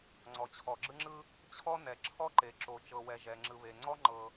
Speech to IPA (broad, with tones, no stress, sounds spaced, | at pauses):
ŋ͡ǀ ɔ˩ t͡ɕʰ ɔ˩ ɡ͡ǁ ɯ˥ ŋ͡ǁ ɯ˥ | t͡ɕʰ ɔ˥ n ɛ˩ ǁʰ ɔ˥ ǃ e˩ ǁ o˩ t͡ʃ ɤ˩ w ɛ˩ ʒ ɛ˩ ŋ͡ǁ ɯ˩ β e˩ ŋ͡ǀ ɔ˥ ŋ͡ǃ ɤ˩